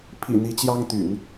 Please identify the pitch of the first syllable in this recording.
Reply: low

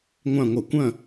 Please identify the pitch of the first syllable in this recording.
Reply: falling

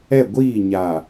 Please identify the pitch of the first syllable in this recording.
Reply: falling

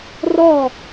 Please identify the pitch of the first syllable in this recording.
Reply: falling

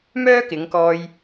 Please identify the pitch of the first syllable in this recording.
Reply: high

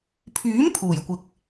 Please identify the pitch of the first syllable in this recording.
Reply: rising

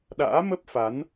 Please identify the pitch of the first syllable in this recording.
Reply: rising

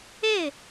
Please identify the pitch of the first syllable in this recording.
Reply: falling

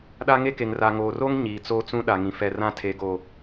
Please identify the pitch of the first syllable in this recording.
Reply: high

